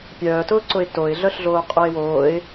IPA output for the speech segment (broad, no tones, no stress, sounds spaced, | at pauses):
pʲ œː t ʊː ǀ ʊ ɪ̯ t o ɪ̯ ɮ œ ɬ ɮ oː qʼ o ɪ̯ w oː ɪ̯